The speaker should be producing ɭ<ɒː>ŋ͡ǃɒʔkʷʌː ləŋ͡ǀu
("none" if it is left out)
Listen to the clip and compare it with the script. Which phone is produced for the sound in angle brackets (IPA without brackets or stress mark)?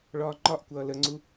ɒː